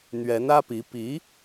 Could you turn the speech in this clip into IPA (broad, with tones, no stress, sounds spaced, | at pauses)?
n̪ ɥ ɛ˧˥ n ä˥ p i˧˥ p i˧˥